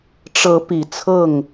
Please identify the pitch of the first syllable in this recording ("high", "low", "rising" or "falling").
rising